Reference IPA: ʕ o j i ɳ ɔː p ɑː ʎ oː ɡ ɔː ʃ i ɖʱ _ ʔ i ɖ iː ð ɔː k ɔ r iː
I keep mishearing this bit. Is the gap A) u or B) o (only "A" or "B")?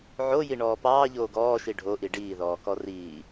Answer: B